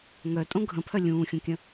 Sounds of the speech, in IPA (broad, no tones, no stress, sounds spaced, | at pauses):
ŋ œ tʼ õ ɡʱ ə̃ pʰ œ lʲ ũː xʲ ũ kʲ ə̃